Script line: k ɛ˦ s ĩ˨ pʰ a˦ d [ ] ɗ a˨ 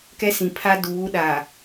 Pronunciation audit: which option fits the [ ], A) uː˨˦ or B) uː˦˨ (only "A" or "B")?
A